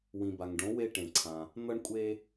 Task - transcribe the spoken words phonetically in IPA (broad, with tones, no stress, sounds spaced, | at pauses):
w ĩ˩ b a˩ ŋ ɖ õ˩˥ w e˧ ʈ ẽ˩ ǀʰ ã˩ | n̪ ʌ˧ ɳ kʷʼ e˧